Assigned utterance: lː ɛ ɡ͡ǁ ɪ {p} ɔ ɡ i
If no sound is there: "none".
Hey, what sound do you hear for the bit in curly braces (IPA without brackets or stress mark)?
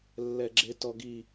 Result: t